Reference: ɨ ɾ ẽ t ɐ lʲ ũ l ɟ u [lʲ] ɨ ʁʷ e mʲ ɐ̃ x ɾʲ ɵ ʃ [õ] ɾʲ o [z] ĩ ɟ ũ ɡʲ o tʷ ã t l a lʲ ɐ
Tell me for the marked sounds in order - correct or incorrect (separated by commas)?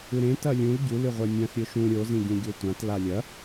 incorrect, incorrect, correct